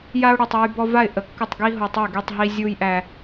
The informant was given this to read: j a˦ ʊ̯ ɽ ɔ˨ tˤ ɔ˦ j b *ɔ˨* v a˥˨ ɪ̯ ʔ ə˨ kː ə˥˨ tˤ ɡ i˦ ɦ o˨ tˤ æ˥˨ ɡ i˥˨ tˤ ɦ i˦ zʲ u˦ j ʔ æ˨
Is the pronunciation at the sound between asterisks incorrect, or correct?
incorrect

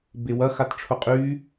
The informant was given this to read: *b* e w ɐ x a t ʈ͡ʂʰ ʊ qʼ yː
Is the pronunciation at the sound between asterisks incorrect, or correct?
correct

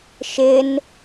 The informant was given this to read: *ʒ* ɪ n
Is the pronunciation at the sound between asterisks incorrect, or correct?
incorrect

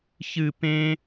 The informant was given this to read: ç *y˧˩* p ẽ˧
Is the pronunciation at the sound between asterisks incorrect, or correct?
incorrect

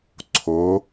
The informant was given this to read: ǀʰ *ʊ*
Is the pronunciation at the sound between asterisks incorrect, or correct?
correct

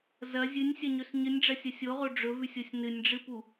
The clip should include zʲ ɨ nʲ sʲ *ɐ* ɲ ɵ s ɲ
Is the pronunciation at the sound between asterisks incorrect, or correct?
correct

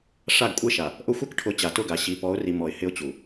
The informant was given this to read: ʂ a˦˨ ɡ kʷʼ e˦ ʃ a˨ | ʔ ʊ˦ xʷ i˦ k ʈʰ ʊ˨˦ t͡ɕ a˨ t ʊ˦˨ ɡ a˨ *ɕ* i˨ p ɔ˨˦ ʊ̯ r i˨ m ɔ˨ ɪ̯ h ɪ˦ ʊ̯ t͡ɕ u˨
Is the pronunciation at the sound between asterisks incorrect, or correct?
correct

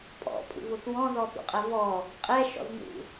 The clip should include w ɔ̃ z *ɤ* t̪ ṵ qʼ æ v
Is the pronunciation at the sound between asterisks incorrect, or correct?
incorrect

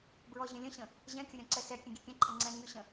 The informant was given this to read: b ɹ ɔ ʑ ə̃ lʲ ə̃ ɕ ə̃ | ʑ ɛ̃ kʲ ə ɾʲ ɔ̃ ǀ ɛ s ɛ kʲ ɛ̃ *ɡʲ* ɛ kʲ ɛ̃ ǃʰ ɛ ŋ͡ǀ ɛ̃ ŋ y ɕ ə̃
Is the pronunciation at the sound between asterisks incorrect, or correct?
correct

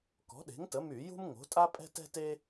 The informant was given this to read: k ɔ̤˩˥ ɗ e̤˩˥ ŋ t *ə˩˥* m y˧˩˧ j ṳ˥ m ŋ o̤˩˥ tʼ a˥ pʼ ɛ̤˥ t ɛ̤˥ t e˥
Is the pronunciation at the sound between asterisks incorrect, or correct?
correct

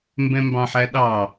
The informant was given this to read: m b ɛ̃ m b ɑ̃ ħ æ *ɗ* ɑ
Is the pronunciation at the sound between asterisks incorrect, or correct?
correct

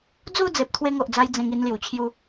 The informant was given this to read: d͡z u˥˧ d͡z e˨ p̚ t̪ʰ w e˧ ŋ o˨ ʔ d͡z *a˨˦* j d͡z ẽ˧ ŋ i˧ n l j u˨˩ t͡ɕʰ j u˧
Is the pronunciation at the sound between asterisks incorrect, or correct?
incorrect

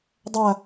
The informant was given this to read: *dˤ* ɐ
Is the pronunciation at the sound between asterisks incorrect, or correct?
correct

